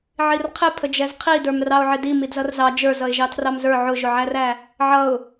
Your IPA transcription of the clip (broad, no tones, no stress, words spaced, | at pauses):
ʕirqʰɪ pʰəd͡ʒɛzqʰi də˞mrɑʊ̯ʕɪdi midzʌrzɑ d͡ʒə˞zʌɪ̯ʒɑ tʰrɑmzə˞ ʕʊʒʊʕæræ | ʕʌʊ̯